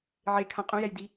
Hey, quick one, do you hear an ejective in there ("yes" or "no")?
yes